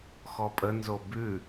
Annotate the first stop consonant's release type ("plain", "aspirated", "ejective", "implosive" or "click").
ejective